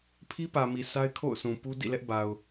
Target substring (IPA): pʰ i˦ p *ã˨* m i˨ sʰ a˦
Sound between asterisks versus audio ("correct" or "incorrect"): incorrect